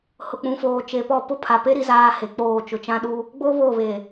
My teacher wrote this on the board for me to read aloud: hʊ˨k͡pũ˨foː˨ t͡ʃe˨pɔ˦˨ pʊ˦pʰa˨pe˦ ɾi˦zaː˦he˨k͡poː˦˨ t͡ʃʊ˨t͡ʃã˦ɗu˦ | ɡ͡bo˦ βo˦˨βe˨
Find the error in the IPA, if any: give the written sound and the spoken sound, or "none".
none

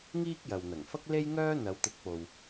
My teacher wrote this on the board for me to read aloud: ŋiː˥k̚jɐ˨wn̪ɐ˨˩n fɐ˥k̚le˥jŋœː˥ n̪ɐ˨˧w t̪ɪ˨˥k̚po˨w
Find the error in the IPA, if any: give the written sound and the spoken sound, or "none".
n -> ŋ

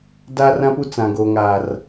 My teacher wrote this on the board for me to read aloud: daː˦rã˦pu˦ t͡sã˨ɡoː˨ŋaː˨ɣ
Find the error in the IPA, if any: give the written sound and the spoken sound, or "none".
ɣ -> r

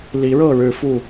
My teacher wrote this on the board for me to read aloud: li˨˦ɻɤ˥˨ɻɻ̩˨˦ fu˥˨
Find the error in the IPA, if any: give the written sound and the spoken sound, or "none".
none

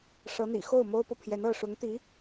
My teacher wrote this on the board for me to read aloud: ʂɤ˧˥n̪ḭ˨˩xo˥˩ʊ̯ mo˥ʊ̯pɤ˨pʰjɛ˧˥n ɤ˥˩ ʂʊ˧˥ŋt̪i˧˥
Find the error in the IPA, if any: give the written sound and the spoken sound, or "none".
none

